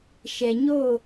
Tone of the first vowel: low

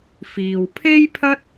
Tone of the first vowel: low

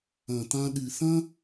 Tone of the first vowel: low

